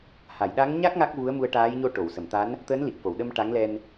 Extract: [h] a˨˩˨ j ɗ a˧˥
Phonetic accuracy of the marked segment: correct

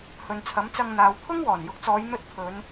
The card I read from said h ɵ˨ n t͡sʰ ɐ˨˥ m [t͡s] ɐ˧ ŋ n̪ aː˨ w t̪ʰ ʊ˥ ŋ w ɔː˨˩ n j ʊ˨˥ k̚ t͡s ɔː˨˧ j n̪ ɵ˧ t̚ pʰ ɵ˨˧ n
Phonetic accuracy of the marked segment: correct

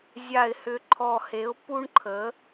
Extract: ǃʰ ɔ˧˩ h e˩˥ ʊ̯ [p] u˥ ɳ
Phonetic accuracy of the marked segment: correct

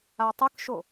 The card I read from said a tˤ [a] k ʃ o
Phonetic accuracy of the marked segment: incorrect: ə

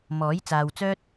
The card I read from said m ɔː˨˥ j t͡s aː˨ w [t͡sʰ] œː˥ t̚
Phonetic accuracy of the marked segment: incorrect: t͡s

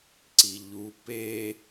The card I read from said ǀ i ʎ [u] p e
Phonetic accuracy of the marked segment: correct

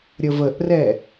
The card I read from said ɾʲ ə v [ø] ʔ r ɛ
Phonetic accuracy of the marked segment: incorrect: ə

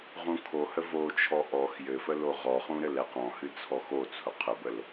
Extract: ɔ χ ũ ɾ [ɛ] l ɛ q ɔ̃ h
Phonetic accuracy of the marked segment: incorrect: ɘ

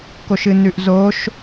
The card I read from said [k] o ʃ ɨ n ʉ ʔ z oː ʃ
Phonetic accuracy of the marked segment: correct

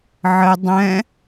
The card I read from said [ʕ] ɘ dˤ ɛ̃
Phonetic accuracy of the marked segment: correct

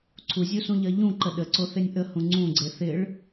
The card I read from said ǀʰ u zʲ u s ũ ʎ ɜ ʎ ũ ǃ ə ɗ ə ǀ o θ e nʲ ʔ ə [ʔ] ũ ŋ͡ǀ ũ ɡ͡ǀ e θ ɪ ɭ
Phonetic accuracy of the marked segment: incorrect: h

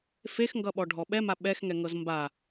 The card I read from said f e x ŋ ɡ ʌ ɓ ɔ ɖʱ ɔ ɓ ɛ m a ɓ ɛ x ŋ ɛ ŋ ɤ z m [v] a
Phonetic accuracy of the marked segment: incorrect: b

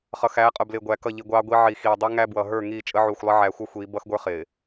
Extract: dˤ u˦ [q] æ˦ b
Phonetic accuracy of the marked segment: incorrect: ŋ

